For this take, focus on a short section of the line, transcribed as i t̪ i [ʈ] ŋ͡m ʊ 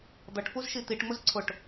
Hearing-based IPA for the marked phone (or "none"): ʈ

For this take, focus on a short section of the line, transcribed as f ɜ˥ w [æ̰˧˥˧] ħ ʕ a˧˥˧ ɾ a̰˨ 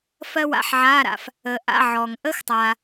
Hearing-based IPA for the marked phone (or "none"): a̰˧˥˧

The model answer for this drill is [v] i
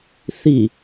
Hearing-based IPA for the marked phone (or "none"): θ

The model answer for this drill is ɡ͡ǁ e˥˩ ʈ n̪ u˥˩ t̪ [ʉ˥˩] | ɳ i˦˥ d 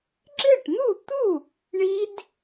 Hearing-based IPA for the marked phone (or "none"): u˥˩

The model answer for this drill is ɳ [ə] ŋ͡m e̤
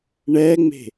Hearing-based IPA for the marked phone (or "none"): ɛ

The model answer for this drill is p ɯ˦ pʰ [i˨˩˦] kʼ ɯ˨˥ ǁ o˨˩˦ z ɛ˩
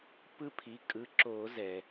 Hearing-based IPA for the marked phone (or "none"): i˩˧˩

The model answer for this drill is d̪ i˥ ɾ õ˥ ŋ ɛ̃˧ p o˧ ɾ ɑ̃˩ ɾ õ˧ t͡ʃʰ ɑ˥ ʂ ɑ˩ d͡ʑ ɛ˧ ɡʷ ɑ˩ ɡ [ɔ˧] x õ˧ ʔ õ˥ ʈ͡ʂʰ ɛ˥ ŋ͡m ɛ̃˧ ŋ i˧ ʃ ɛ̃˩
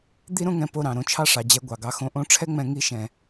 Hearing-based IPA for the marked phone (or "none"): ɑ˧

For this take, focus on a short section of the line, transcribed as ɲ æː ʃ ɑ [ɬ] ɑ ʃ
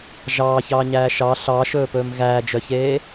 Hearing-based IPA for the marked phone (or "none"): ɬ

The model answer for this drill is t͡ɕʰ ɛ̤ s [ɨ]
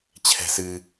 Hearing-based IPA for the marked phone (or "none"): ɨ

